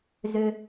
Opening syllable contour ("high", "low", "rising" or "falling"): high